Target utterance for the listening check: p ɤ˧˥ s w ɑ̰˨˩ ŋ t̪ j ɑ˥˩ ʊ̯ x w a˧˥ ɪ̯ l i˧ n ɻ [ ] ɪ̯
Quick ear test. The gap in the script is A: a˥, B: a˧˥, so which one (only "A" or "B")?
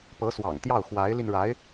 B